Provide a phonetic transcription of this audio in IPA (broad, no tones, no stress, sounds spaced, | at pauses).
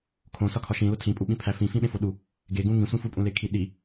kʰ õ s ɒ kʰ ɒ ʃ ĩ l o tʰ ĩ pʼ u ɓ ĩ pʰ æ f ĩ f ĩ ɓ ẽ f o ɗ u | ɡ e ɡ ũ ŋ ĩ sʷ ĩ f u pʼ ũ l e kʰ i ɗ i